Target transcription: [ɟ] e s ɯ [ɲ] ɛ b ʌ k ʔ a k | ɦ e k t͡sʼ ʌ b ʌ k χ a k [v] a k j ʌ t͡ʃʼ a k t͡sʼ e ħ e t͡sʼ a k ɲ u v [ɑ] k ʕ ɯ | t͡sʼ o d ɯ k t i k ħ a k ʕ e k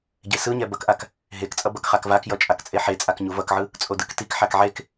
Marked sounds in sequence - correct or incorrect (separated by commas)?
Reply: correct, correct, correct, incorrect